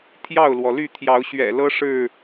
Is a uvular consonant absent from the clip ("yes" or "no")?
yes